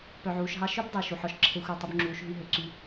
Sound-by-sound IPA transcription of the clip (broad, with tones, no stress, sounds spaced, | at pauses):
p œ˨ ʕ uː˨ ʃ ɦ ɑ˦ ʃ ɵ˦ b dˤ y˨ ʃ u˨ ħ ɔ˨ ʃ ǁʰ e˧ xʷ æ˦˨ tˤ ɵ˦ b ŋ͡ǁ uː˨˦ ʃ ɦ y˦ ɦ ø˨ ǀ y˧